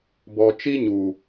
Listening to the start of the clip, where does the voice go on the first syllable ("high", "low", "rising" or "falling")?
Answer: low